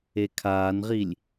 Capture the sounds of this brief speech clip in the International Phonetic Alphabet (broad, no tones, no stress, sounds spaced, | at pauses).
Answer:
e kʰ aː n ʁ i lʲ